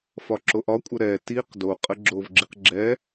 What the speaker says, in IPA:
fɒǁoʔɒkʷʼə ɾɛ tiq do qʼəɡ͡ǁovɡ͡ǁiq ɡ͡ǁɛ

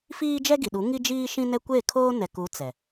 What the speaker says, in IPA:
fiː˦d͡ʒɛ˦ɡi˨ɗu˨˦ ŋi˦d͡ʒiː˦ʃĩ˦nɛ˦ kʷe˦˨kʰoː˦ nɛ˨ku˨˦ t͡sɛ˨

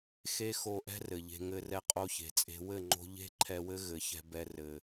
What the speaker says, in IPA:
xe˦xo˧ʔɛ̤˦ rɘ˨ʎe̤˧ ŋɘ˧rɛ˧ qʼo˧çe̤˨t͡sʼe̤˧ wɘ˦˨ŋ͡ǃo̤˧ ʎe̤˦ ǃʰɛ˧wɘ˦ ɣɘ˨˦ çɛ̤˧bɛ˧ rɘ˨

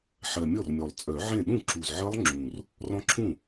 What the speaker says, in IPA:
ħɜ˨˩ mʲɔ˥˩rmʲɔ˨˩lˠ t͡sʼœ˨˩˦ʕẽ˥˩ ɗũ˥˩ǁu˨˩z ʕɜ˦˥lˠŋ͡ǁũ˨˩r | rɔ̃˦˥ǁʰũ˥˩

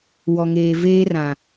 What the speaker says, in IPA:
wɔ˨ŋeː˨ veː˦rã˨

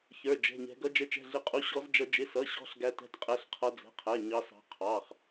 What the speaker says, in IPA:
çə˞˧˥˧d͡ʒɛ̤˧˥˧ɲɛ̤˦˥ ɡʌ˦˥d͡ʒə˦˥t͡ʃɛ̤˧˥˧ɮɪ˦˥ qʼu˧˥˧ɕɔ˦˥zd͡ʒʌ˦˥ d͡ʒɪ˧˥˧sʌ˧˥˧ɕɔ̤˧˥˧ɬ ɡæ˦˥tɛ̤˧˥˧tqʼɛ˧˥˧ɬ qʰʌ˦˥d͡zɛ̤˧˥˧qʰæ˧˥˧ ɲɑ˦˥sɑ̤˦˥ qʰɑ˧˥˧χ

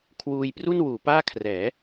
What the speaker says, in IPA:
kʰwuː˧j pru˥˩nwuː˩˦paː˥˩ kʰrɛː˩˦

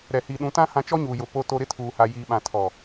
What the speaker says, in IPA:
ɾɛ˨ hiː˨ɗũ˨˦tã˦ hã˦ t͡ʃɔ˦ɲuː˨jʊ˨ po˦to˦ ɾɪ˦tʰuː˨ha˨ jiː˨ɓã˨tʰɔ˨

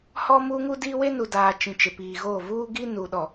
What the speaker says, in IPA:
hɔ˦muː˦ŋu˦diː˦ we˦nu˨daː˨ t͡ʃĩ˨t͡ʃɪ˨piː˨ɣoː˦˨ vuː˦ɡi˦nu˨ ɗɔ˨

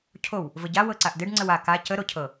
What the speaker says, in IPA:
cʰow | vəɟa wɤǀaʔdɪɖ ŋ͡ǀəwa ka cə ɾocʰɤ

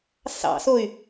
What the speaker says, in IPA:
sɑ̰soy̯

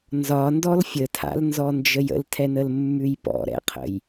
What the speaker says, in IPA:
nzɒndɔl fʲətʰa̰lnzɔnd͡ʒəj ə̰ltʰɛnəlmːʉj pɔ̰ɾɛ̰qʰə̰j

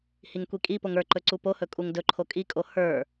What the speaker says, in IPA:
hiŋkʷikʼipoŋ ə˞ǃɵ ǀupohɵ kʼuŋdɵǃʰo kʼikʼo hə˞

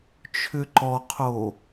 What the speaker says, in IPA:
t͡ʃʰʏǃɔqʰo

